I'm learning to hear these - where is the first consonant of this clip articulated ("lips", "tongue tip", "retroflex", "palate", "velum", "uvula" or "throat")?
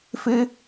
lips